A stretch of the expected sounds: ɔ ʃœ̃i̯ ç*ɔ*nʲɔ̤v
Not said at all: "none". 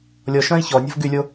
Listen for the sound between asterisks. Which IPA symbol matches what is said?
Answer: ɔ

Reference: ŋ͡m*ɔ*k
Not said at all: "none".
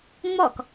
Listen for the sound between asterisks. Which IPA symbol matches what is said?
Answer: ɔ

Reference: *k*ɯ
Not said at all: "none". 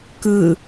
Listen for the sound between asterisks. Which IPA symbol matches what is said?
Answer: k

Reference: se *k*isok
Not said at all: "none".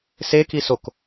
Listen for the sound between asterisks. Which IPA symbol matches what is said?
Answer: k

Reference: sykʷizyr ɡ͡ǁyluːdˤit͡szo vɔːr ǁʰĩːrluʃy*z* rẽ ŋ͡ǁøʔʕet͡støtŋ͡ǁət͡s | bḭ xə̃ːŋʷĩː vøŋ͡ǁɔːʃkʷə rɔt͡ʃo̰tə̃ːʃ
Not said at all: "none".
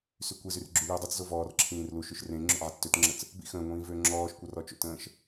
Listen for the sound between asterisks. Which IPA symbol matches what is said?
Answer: ʃ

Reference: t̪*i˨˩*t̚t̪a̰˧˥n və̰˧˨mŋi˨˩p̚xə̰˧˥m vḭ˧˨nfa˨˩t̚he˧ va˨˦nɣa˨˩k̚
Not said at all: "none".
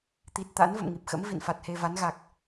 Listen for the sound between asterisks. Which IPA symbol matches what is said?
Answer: i˨˩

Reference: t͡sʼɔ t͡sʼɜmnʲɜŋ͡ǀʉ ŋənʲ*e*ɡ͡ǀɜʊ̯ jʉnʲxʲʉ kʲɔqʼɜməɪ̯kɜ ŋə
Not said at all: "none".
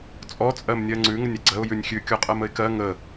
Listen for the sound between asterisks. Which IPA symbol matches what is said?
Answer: e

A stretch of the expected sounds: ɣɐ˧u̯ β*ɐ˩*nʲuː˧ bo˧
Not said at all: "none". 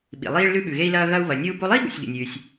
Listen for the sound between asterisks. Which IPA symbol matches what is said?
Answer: ɐ˩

